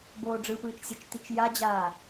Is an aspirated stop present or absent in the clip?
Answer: absent